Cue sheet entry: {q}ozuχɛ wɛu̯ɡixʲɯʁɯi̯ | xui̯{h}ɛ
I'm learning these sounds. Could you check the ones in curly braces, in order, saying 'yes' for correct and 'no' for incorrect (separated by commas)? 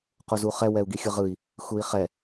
yes, no